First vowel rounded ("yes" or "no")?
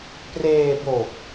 no